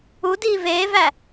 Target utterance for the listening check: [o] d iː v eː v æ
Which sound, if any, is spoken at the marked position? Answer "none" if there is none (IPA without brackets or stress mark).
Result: u